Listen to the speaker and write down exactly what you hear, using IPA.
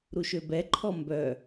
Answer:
ɾ u ʃ ø b ɛ ǃʰ ɔ m b œ

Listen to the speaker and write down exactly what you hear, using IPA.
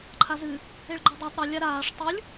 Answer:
ǃʰ a z ɨ | e ɭ ɡ͡ǃ y dˤ a tˤ ɾ ɨ lʲ a ɾ aː ʂ tˤ ɯ lʲ

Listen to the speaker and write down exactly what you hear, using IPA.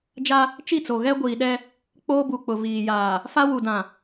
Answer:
d͡ʒ a˦ | t͡ʃ i˦˨ t͡s o˨ ɣ ɛ˦ ɡʷ iː˨ ɗ ɛ˦ | k͡p oː˦ b u˨ k͡p ʊ˨ v iː˨ j aː˨ | f a˦ w u˨ d ã˨

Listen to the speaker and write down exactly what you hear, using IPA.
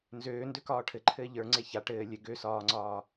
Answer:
n z øː n d ø k ɒː ʈʰ ɘ ǃʰ ɘː ʎ ə˞ ŋ͡ǀ e ç a ʈ ɘː lʲ ɘ ɡ ø s ɒː ŋ͡ǀ ɒː

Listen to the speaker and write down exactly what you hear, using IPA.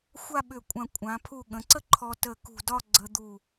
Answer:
xʷ a˥˧ ɓ ʏ˧˩ kʷʼ ã˧˩ kʷʼ ã˩˧ pʰ u˧˩ ɠ ə̃˩˧ ǀ ə˥ ǃʰ ɔ˧ t ə˧˩ k ṳ˧˩ d ɒ˥˧ ɡ͡ǀ ə˧ d̪ u˧˩

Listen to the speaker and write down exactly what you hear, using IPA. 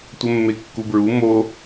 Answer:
tʷ ə mː e kː u b ɹ u m o

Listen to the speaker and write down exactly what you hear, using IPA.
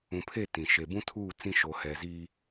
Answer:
ũ˨ pʰ e˦˨ t ĩ˨ ʃ e˨ b ũ˦ tʰ uː˦˨ t͡s ĩ˦ ʃ o˨ h ɛ˨ z iː˦

